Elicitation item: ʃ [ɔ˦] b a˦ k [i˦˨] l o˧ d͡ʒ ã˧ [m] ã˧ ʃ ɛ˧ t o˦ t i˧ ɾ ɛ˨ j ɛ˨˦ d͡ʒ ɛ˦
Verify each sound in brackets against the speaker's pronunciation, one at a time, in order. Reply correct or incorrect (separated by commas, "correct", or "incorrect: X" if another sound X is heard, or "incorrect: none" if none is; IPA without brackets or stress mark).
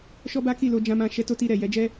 correct, correct, correct